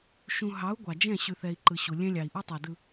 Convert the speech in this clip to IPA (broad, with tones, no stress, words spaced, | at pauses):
ʃũ˨ɦɑ˨˦u̯ ɡʷɑ˨d͡ʒɛ̃˦˨ ɕʉ˨θɛ˨i̯ǃɯ˨ ɕu˨lʲɛ̃˦ lʲɑ˨i̯ʔu˦tˤɑ˨dɯ˨